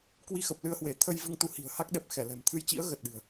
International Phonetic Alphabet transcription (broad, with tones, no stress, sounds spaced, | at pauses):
k w i˧ x ə˨˩ p̚ l ɨ˧ ə̯ h w e˧˩ t̪ʰ ə˧ j v ɨ˧ ŋ t̪ u˨˦ h i̤˨˩ ə̯ h a˦˥ k̚ ɗ ɛ˨˩ p̚ x ɛ˧˩ l ɛ̤˨˩ m t̪ʰ ɨ˧ j t͡ɕ ḭ˧˥ ə̯ ɣ ə˨˩ t̚ ɗ ɨ̤˨˩ ə̯